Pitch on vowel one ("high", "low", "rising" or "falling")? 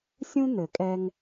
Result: high